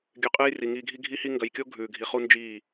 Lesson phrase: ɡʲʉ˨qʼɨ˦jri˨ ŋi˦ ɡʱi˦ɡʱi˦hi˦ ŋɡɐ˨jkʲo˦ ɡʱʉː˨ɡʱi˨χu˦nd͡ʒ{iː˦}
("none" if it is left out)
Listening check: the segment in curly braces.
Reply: iː˦˨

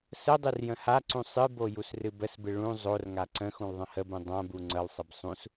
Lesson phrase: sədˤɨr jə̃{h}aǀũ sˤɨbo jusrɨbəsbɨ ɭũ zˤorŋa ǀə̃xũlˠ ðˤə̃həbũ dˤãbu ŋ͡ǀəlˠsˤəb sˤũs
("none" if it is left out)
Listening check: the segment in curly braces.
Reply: h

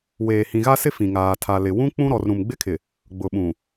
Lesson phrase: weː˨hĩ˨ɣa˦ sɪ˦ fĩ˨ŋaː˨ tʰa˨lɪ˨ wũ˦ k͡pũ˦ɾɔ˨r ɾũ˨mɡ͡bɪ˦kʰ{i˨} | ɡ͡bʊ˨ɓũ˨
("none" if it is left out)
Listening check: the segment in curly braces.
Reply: ɪ˨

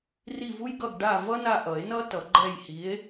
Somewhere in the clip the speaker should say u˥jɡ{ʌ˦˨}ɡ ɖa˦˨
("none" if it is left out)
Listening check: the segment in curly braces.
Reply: ʌ˦˨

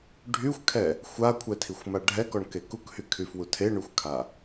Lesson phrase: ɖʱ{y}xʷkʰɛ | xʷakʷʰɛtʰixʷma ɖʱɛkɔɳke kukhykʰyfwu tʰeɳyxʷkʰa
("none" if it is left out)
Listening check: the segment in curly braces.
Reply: y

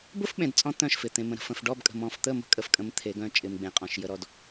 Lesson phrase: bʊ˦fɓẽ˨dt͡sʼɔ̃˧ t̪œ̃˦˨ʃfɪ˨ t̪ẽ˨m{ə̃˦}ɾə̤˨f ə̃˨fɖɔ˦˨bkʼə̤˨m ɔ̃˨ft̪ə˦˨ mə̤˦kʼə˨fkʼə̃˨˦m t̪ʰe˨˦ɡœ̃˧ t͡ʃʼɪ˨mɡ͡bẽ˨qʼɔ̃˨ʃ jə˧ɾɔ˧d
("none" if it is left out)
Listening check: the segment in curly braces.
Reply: ə̃˨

